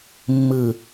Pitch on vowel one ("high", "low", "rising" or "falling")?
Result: low